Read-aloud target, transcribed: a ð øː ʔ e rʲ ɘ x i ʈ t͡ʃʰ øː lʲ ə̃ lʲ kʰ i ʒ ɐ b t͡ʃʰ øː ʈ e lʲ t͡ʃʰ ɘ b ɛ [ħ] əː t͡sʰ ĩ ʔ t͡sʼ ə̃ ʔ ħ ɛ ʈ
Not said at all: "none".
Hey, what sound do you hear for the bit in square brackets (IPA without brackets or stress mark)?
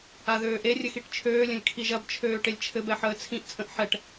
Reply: ħ